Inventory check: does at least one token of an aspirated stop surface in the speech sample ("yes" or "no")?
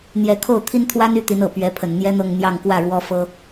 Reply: yes